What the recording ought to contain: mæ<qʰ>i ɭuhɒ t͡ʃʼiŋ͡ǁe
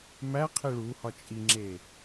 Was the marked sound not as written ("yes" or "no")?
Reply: no